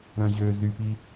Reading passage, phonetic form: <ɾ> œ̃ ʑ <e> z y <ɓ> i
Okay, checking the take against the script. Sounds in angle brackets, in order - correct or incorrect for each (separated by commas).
correct, incorrect, incorrect